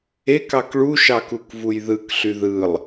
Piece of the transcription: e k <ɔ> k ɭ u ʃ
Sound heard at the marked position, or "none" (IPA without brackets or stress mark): ɑ